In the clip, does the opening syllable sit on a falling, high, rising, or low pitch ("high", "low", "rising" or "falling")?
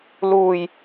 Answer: low